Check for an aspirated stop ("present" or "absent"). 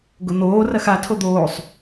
present